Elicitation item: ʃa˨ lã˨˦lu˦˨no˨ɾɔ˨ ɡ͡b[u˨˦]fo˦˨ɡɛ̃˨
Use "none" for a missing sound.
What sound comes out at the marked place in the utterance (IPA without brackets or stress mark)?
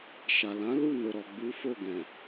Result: u˨˦